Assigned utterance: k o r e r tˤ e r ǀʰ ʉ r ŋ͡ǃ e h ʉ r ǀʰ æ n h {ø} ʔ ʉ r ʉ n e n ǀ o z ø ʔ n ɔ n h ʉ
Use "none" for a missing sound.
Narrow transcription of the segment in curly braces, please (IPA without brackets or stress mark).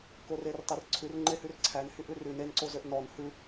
y